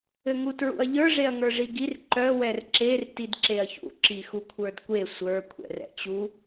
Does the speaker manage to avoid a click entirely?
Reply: no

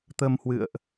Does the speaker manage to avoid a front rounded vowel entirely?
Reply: yes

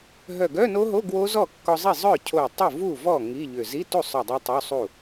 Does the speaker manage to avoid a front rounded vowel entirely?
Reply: no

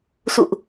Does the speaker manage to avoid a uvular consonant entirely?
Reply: yes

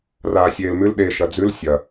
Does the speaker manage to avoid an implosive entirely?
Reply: no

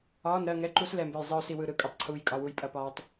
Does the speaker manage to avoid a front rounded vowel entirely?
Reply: yes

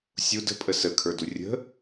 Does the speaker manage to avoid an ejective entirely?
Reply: no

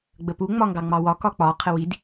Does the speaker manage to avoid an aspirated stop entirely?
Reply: no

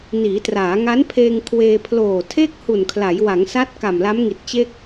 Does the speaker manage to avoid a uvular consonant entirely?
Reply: yes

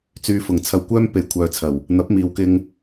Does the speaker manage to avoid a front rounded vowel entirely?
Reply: no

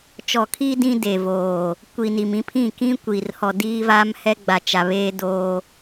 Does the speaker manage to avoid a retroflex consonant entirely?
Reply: yes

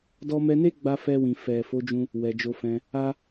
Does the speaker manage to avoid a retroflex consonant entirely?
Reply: yes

